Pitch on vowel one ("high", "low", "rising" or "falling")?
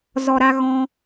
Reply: low